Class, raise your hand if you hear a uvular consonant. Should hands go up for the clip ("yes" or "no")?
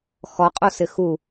yes